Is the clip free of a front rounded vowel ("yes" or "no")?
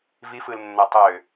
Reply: no